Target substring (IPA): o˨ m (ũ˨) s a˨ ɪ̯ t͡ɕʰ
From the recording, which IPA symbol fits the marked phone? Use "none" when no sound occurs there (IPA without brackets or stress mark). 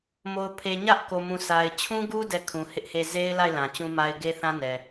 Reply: ũ˨